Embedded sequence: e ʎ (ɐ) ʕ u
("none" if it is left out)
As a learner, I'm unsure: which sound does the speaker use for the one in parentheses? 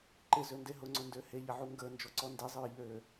ɐ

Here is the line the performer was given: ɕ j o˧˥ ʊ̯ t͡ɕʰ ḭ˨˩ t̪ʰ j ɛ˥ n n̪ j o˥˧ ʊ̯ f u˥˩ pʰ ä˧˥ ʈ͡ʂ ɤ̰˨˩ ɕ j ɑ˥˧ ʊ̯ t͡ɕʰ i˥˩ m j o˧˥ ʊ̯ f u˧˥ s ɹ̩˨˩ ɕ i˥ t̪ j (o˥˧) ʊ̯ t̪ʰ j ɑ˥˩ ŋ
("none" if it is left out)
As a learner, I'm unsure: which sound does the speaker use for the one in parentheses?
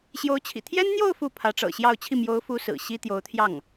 o˧˥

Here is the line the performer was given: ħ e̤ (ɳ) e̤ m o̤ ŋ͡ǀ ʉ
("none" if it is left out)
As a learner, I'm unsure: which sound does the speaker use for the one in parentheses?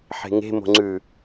ŋ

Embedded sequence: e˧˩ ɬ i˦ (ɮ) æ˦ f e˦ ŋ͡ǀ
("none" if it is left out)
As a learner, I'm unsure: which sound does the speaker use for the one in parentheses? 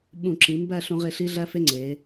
ɮ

